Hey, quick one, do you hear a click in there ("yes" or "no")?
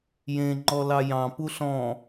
yes